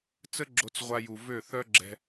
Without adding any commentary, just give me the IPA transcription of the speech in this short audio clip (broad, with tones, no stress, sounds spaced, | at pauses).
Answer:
t͡s ə˦ ɡ͡ǁ o˧ t͡s ʁʷ a˧ j u˨ v ø˦˨ θ œ˦ ɡ͡ǁ ɛ̤˧